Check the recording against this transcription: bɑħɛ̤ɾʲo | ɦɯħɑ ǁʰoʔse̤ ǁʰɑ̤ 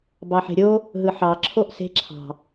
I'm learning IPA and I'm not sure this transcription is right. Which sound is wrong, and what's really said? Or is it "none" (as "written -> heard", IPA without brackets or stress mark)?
ɛ̤ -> e̤